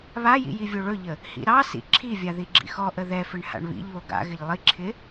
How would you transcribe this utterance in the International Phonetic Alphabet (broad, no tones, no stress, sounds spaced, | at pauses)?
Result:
β a j ḭ j i vʲ o ɭ ɵ ʎ ə | h ḭ ɾ ɑ s ḭ ǁʰ i vʲ a ð i ɡ͡ǁ ḭ x ɔ ʔ ə ð ɛ f ɪ ɳ h a̰ ɳ β ḭ ʎ β o ɡ a̰ ɣ ɪ ʎ lˠ i ǁʰ ɪ